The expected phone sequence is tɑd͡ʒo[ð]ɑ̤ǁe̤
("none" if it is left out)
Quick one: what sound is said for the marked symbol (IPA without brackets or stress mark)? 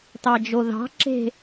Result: ð